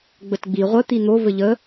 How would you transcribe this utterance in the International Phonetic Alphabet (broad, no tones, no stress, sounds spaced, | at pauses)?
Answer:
ɡ͡b ə t ɡ͡b i ʁʷ ə t̪ i n̪ o v ɘ ʎ ə